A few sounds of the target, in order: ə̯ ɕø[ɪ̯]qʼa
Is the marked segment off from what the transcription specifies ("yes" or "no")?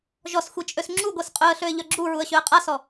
yes